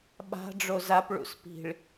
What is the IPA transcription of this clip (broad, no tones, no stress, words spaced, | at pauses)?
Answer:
ɓa̤ ɖ͡ʐozap ɭṵspi̤ɭ